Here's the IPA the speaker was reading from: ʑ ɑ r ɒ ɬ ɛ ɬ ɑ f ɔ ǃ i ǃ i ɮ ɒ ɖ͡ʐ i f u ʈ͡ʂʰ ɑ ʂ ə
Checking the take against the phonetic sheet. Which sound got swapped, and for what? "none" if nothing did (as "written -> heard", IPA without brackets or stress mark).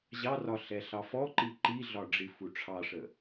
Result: none